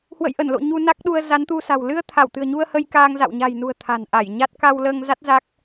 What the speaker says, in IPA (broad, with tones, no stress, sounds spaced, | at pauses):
h w ə̰˧˨ j ʔ ə˧˩ n l o̰˧˨ ɲ u˧ n a˦˥ k̚ ɗ u˧ ə̯ z a˨˦ n t̪ u˧ s a̤˨˩ w l ɨ˧ ə̯ t̪ʰ a˧˩ w t̪ ɨ̤˨˩ ə̯ ɲ u˧ ə̯ h ə˧ j k aː˧ ŋ z a̰˧˨ w ɲ a̤˨˩ j n ṳ˨˩ ə̯ t̪ʰ a̤˨˩ n ʔ a˧˩ j ɲ a˦˥ t̚ k a˧ w l əː˧ ŋ z a˦˥ t̚ z a˦˥ k̚